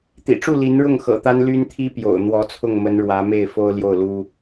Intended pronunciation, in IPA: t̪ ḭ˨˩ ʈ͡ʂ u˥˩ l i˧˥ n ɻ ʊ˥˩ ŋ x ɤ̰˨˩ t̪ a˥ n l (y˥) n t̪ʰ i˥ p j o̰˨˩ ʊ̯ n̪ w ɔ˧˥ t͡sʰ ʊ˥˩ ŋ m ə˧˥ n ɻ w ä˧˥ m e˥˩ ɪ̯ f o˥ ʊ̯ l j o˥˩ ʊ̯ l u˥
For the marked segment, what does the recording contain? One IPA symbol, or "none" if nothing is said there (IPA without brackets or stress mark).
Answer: y˥